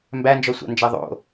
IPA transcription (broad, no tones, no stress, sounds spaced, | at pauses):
m b æ n d͡ʒ ɔ sʷ a̰ n d͡ʒ æ ðˤ o̰